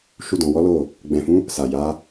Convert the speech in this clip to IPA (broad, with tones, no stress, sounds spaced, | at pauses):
ʃ u˧ d ɔ̃˨ w ɔ˨˦ l o˦˨ | ɡ͡b ɛ̃˨ f ũ˨˦ | s a˨ j a˨˦